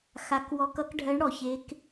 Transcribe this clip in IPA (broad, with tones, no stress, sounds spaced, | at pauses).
x a˧˥ k w ɔ˧˥ k ʌ˧˥ k ɖʱ ɜ˧˥ ɳ ɽ ɔ˨ ç e˧˥ k